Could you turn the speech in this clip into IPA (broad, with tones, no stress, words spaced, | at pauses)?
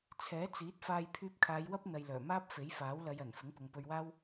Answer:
t͡sʰɛː˨˥t͡siː˨˥t̚faː˧j pʰyː˧p̚kʰaː˨˧jwɐ˥p̚ n̪ɐ˨jlœː˨˩maː˥p̚ fe˨˥jfaː˨˥wlɐ˨˧jɐ˨˩n fɪ˨˥ŋpʊ˨ŋpɵ˧ɥwaː˥w